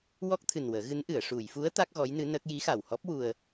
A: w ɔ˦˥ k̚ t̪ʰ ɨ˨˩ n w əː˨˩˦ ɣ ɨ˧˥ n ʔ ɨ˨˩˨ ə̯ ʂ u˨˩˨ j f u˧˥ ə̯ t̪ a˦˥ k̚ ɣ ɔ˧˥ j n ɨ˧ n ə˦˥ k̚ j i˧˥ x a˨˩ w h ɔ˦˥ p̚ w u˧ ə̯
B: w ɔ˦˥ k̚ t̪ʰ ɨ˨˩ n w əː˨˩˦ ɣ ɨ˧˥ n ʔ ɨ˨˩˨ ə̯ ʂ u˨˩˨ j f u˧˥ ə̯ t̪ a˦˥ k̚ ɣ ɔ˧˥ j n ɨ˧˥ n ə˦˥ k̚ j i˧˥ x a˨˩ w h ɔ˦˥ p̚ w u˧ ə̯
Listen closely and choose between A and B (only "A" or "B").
B